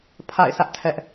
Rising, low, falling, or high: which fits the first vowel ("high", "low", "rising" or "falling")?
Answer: falling